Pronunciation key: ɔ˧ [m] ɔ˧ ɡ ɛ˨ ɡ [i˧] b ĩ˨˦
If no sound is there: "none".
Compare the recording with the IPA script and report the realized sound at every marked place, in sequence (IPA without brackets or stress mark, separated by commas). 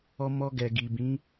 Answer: m, i˨